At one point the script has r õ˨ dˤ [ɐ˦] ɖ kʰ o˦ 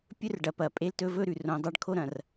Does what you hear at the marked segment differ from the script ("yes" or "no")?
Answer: yes